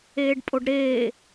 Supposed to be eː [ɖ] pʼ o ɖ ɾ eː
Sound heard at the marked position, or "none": ɖ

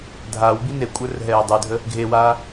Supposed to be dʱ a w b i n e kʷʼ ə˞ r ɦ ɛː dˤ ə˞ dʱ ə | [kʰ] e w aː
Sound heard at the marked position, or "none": ɡʱ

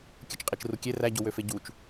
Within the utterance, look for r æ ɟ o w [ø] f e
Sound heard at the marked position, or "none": ø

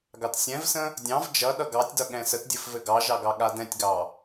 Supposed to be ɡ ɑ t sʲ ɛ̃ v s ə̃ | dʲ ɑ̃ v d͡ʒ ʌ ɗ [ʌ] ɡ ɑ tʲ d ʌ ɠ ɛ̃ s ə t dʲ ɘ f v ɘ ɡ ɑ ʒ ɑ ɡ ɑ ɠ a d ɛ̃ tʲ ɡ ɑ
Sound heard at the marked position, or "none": ʌ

